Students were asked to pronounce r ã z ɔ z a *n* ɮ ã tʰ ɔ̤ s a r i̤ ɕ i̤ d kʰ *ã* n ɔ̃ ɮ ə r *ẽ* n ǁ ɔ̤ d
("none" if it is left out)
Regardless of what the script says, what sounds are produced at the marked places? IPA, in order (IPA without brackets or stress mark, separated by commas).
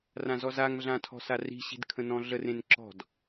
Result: ŋ, ə̃, ẽ